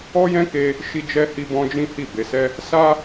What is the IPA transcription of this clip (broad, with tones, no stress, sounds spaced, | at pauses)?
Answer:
ɔ˦ j ɛ̃˦ k e˦ | ʃ i˦ d͡ʒ ɛ˦ h i˦ b ɔ̃˦ d͡ʒ ĩ˦ h i˦˨ b e˧ s ɛ˦ | s a˦